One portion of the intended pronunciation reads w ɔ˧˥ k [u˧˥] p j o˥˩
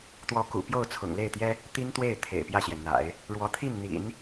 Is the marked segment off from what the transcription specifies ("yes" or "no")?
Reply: yes